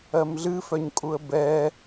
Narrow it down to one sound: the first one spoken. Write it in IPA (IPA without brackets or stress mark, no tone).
ɜ